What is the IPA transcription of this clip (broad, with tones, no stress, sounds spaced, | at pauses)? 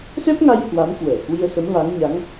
s ɛ˦˥ p̚ ŋ a˧ j h w a˨˦ m k w əː˧˩ k w i˧ ə̯ s ə˨˦ m v a˨˦ ŋ ɲ a˨˦ ŋ